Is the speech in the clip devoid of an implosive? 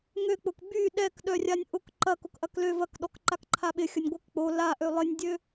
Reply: no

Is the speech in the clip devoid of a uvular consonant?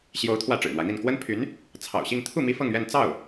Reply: yes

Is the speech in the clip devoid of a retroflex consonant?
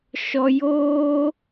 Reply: yes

